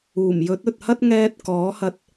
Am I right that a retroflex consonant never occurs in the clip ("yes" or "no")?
yes